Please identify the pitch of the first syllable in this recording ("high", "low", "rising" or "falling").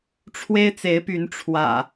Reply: high